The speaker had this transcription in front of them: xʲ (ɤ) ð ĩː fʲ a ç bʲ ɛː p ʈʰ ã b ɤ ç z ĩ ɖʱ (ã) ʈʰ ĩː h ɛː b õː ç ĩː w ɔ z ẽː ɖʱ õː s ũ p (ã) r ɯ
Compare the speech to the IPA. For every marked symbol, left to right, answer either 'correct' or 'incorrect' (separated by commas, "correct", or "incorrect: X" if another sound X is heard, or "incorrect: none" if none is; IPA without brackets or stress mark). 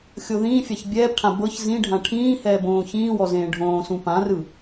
incorrect: o, correct, correct